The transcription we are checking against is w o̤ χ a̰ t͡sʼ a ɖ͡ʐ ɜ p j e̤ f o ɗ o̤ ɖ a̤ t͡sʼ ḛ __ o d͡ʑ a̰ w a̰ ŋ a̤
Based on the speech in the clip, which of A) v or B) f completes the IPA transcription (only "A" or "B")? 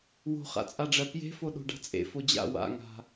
B